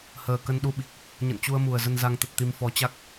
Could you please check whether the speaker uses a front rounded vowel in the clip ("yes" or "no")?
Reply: no